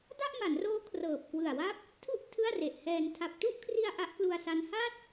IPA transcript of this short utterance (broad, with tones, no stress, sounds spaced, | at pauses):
d a˥˩ ʔ m a˩˦ n r oː˦˥ kʰ r ɤː˨˩ p̚ k w ɯ˨˩ a̯ w a˥˩ p̚ | tʰ u˥˩ ʔ tʰ ɯ˥˩ a̯ r e˨˩ ʔ h ɛː˧ n tʰ a˨˩ p̚ t u˥˩ ʔ kʰ r i˧ a̯ ʔ a˦˥ ʔ k l u˧ a̯ s a˦˥ n h a˥˩ t̚